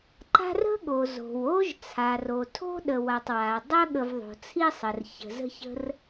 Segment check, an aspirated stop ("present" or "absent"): present